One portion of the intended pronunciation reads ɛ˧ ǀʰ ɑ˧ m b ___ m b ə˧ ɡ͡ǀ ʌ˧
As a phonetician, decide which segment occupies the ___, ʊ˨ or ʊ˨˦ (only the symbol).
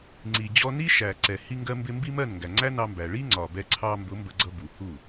ʊ˨˦